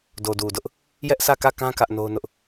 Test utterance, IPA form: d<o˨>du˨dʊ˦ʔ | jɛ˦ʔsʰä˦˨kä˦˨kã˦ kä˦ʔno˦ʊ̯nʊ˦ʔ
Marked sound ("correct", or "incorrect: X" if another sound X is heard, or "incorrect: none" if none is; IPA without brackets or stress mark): correct